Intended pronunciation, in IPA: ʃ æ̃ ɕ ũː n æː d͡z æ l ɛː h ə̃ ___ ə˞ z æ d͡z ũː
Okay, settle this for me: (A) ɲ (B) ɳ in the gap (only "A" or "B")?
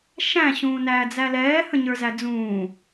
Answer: A